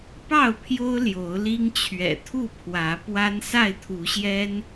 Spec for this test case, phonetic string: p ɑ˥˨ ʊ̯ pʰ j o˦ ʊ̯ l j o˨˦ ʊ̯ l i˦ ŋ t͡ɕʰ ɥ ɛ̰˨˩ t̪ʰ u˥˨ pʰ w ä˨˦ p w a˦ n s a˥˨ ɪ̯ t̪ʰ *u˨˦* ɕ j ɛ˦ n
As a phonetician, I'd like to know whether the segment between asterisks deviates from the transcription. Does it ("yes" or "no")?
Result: no